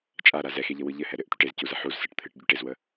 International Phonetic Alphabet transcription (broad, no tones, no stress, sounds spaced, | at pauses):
t͡ʃʼ a ɾ a z ɛ x e ʎ ə w ɯ ʎ ɘ h ɛ ɾ ɘ ʔ t̪ y ʈ e z c u z ə ħ u z s ɯ ʈ t̪ʰ ɨ ʈ ɟ y ʈ e z w ə